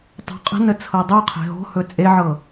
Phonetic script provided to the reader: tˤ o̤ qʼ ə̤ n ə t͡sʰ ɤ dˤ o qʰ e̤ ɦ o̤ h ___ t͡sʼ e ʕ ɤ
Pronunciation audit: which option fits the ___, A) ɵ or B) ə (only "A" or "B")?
A